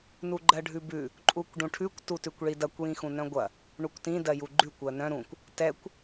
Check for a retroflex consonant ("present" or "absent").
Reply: present